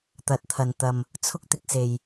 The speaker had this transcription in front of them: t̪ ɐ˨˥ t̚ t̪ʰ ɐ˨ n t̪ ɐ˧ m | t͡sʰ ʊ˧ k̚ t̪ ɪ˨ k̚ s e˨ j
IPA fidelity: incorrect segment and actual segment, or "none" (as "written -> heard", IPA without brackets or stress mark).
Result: none